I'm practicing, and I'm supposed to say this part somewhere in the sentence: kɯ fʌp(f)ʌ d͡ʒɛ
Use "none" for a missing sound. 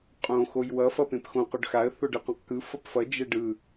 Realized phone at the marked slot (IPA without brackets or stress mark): f